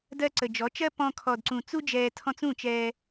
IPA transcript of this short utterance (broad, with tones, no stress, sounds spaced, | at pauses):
d ɜ˧ ǀ ə˨ d͡ʒ ɔ˨˦ t͡ʃ ɜ˦ p ɔ̃˧ kʰ ɔ˨ d ǀ ũ˨ t͡s u˦ d͡ʒ ɛː˧ tʰ ɔ̃˧ t͡s ũ˦˨ t͡ʃ ɛː˧